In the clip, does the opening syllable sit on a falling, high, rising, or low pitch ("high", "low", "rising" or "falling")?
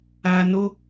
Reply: low